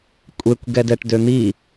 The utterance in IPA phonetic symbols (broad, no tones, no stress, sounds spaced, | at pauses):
kʷʼ e kʷ ɡ ɛ d ɛ ʈ d ø n̪ i